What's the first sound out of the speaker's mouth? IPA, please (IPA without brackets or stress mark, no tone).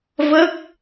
v